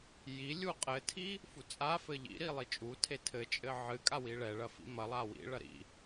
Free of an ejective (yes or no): no